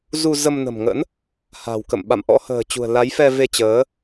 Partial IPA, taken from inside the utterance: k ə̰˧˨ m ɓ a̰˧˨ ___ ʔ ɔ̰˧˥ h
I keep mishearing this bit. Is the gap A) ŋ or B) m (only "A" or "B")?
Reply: B